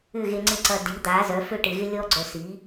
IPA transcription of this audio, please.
ʏ˥˩ ɣ e˧ ŋ͡ǀ ɪ˥˩ ǀ ɐ˧ d i˩˥ d̪ a˩˥ z œ˩˥ f ø˥ ʈ ɪ˩˥ ɣ ɪ˥ lʲ ɔ˥ ɡ͡ǀ œ˧ s i˩˥

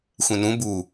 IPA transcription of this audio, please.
xʷ ẽ n ũ b u

